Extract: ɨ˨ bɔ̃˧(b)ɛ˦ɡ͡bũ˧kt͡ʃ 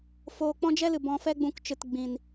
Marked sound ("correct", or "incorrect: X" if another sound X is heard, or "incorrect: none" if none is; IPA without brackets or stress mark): incorrect: f